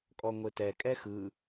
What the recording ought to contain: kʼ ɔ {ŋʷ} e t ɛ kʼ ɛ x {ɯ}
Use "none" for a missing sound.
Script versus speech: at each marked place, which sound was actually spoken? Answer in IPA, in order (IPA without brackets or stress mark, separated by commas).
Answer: ŋʷ, ɯ